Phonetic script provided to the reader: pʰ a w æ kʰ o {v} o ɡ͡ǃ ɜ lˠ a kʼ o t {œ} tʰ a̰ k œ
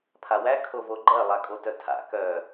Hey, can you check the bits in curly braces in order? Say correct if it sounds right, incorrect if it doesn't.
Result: correct, correct

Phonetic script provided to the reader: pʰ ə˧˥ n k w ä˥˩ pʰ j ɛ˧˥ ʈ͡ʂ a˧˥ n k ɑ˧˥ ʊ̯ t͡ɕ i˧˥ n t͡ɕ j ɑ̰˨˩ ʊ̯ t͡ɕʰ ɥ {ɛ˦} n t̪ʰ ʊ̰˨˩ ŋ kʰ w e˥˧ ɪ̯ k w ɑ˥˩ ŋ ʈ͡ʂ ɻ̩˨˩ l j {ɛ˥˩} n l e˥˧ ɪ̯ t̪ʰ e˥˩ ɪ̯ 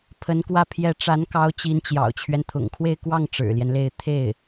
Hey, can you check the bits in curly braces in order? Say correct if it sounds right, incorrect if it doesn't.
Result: correct, incorrect: ɛ˦

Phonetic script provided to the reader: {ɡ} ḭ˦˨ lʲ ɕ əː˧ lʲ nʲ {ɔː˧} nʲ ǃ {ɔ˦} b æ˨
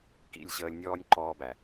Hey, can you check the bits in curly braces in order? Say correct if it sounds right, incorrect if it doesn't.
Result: incorrect: k, incorrect: ɔː˦, incorrect: ɔː˦

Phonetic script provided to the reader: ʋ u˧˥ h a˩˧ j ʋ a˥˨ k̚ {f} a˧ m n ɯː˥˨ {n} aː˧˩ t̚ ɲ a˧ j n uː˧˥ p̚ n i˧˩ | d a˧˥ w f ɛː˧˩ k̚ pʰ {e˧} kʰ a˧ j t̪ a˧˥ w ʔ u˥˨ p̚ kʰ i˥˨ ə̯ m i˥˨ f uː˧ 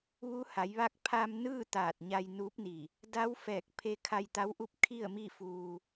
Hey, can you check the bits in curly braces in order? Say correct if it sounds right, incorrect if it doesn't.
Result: incorrect: pʰ, incorrect: t̪, correct

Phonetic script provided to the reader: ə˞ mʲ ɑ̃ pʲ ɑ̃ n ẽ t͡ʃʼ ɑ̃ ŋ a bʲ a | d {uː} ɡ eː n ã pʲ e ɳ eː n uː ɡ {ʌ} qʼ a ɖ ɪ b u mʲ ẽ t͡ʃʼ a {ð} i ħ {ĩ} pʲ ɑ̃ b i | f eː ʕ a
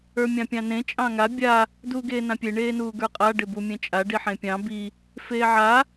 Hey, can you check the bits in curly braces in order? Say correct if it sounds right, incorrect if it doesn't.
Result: correct, incorrect: ə˞, incorrect: ɖ, incorrect: ẽ

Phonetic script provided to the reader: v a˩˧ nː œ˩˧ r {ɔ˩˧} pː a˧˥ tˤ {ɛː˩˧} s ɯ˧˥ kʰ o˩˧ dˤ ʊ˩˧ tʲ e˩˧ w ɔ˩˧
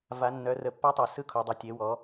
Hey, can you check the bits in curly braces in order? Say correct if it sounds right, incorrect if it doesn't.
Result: incorrect: ə˩˧, incorrect: ɛ˩˧

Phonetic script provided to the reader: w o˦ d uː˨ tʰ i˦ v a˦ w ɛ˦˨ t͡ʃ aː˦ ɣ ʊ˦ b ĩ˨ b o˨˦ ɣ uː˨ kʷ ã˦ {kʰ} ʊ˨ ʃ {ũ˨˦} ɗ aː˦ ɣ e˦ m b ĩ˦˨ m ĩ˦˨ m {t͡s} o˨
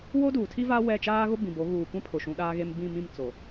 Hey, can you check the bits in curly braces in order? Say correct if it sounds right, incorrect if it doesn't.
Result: incorrect: pʰ, correct, correct

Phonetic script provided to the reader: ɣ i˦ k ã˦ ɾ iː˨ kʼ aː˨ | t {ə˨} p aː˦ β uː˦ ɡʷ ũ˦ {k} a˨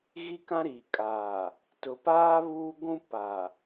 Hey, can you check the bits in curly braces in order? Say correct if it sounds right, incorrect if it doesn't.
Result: incorrect: ʊ˨, incorrect: p

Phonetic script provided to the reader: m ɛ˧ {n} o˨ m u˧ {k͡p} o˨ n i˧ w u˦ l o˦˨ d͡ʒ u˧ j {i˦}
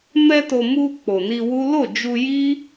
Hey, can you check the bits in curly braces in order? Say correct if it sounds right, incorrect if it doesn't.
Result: incorrect: t, correct, correct

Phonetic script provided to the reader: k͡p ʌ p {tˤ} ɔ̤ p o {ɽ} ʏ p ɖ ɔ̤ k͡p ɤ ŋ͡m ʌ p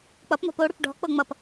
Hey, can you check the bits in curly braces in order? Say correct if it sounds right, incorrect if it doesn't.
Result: incorrect: n̪, correct

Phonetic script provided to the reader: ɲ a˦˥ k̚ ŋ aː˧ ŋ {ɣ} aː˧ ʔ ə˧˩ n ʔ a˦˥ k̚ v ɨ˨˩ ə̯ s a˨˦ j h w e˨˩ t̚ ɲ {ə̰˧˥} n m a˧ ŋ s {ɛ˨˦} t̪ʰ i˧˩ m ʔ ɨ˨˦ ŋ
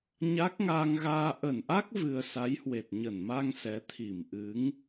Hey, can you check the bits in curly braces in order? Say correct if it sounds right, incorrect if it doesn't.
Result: correct, incorrect: ə˧˩, correct

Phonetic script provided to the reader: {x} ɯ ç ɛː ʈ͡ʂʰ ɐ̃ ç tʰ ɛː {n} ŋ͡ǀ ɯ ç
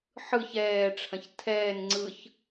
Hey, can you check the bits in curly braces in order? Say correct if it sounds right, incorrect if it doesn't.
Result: incorrect: ħ, correct

